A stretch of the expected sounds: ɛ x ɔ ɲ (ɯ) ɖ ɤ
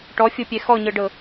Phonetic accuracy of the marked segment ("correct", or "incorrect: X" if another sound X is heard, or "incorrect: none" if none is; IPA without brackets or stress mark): incorrect: ɤ